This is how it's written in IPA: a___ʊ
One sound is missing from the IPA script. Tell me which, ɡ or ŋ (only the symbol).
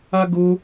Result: ɡ